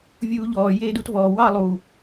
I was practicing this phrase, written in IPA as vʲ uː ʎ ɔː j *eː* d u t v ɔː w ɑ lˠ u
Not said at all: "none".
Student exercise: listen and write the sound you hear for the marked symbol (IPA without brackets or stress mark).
eː